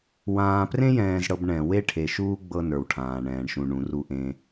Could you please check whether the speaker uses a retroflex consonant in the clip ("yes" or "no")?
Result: yes